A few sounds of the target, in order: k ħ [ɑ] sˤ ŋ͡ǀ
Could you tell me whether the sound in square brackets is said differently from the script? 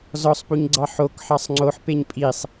no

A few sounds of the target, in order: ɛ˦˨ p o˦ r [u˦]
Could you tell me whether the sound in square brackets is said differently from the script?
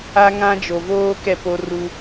no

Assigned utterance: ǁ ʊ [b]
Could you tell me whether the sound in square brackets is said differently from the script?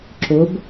no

